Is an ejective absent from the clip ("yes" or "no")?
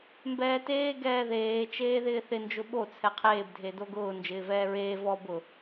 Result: yes